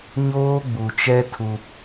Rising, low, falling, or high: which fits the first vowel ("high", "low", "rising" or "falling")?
high